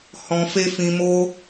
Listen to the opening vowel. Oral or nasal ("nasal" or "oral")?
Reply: nasal